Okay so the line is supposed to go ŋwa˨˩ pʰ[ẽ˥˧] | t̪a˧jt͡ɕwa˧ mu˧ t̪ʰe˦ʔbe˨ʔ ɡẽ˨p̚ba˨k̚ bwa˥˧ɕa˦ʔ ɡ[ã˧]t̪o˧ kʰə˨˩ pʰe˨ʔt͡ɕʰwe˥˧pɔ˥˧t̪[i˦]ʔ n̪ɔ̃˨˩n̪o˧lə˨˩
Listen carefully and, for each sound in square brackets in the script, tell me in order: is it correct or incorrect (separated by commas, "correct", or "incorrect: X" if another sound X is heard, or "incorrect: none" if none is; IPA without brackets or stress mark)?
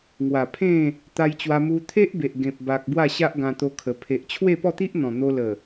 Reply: correct, correct, correct